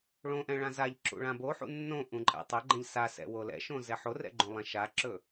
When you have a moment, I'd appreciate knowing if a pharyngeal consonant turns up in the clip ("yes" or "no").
yes